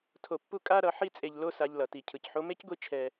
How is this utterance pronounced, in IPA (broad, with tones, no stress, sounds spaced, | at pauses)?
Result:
tʰ o˧ pː u˥ kʼ a˥ ɾ ʌ˧ ħ i˥ t͡sʼ e˧ ʎ l o˥ s a˧ ʎ l ʌ˩ t i˩ cʰ ɯ˩ c ħ o˧ m e˥ c ɡʷ i˧ t͡ʃʰ ɛ˧